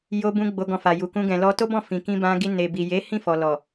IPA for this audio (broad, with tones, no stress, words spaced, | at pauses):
jo˧bũ˧ ɡ͡bo˧ɡɔ̃˧fa˨ ju˨kũ˧ ɡɛ̃˨lɔ˧to˦ bɔ̃˦˨fĩ˨ kĩ˧bã˧ɡi˧ ne˨bi˨je˨˦ hĩ˦˨fɔ˨lɔ˨